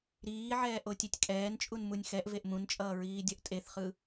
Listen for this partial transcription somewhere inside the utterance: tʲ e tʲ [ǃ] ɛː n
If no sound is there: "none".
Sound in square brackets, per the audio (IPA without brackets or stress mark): kʼ